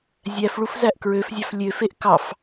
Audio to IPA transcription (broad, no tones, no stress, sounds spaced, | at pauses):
zʲ æ f ɭ u f z æ ʔ k ɹ ø f zʲ ɑ f lʲ ø f e ʔ k ɑ f